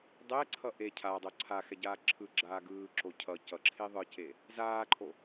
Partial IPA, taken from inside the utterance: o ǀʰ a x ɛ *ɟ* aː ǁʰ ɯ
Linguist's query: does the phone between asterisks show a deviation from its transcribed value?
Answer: no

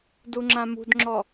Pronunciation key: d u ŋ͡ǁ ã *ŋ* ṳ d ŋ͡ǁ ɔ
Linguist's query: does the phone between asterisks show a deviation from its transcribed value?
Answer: yes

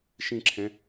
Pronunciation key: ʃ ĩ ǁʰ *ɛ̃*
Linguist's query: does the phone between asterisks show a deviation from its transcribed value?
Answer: no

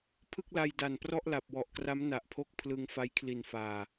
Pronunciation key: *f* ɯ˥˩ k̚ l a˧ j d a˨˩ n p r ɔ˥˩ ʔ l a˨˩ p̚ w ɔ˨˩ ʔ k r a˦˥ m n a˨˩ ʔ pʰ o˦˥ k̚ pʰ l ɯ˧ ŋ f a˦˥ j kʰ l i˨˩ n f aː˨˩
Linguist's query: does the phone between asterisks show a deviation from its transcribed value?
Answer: yes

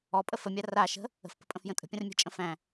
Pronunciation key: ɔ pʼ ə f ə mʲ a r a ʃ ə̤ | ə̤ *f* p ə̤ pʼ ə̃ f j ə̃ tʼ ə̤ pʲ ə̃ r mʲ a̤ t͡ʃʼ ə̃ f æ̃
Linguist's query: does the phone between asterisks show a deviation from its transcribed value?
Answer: no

